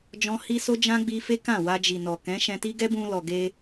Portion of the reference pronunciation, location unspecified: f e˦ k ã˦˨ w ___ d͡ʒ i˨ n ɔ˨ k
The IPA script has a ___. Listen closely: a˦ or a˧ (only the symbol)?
a˧